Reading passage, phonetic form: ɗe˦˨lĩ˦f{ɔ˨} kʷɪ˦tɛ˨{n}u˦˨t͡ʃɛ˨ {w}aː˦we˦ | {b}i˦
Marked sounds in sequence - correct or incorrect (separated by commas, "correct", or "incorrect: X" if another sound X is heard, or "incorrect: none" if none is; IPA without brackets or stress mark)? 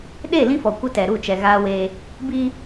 correct, incorrect: ɾ, incorrect: ɣ, correct